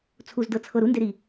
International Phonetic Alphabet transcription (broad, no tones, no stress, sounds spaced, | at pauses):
t͡sʰ u z d ɤ t͡sʰ ɤ ɾ u n d e ɾ iː